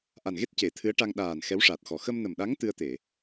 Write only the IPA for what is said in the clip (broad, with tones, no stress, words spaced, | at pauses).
ʔa˨˩nɣe˦˥t̚ ce˨˩˦t̪ʰɨ˧˥ə̯ʈa˧ŋ ɗaː˨˩n xɛ˧˥wʂa˨˩t̚xɔ˨˩ xə˧mnə˨˩mɗa˧˥ŋ t̪ɨ˧ə̯t̪e˨˩˨